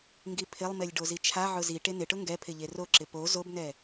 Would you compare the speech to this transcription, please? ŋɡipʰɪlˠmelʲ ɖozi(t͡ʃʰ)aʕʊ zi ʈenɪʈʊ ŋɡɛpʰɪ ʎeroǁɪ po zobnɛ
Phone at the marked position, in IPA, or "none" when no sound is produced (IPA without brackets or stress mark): t͡ʃʰ